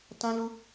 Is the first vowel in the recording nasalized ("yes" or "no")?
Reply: yes